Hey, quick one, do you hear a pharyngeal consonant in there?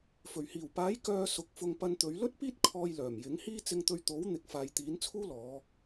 no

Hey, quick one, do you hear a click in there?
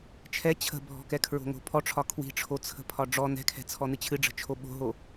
no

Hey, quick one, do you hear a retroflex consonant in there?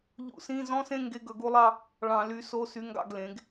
yes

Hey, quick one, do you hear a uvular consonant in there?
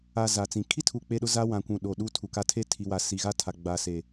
no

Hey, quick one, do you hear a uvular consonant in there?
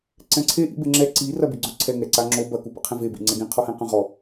yes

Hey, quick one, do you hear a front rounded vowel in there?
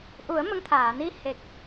no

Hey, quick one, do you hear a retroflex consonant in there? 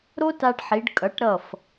yes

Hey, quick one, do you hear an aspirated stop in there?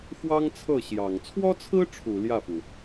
yes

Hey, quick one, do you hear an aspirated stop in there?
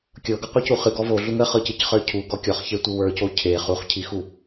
yes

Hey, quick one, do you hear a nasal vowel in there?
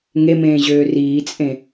yes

